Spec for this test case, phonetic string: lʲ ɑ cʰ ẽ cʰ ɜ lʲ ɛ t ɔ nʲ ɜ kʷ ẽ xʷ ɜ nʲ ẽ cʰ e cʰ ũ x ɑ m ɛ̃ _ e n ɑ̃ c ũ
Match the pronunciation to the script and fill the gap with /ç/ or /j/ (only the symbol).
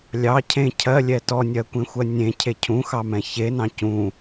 ç